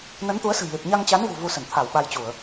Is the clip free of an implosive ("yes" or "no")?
no